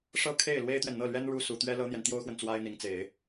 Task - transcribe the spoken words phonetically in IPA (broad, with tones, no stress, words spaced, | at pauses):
ʂɤ˥kʰe˥˩ɪ̯ lwe˥ɪ̯t̪ɥɛ˨nn̪ɤ˥˩lɥɛ˥n ɻu˥su˨˩ t̪ɥɛ˥lɤ˥n̪jɛ˨n t̪jo˥ʊ̯xwə˨n t͡swa˥ɪ̯n̪i˧˥ŋt͡se˨˩˦ɪ̯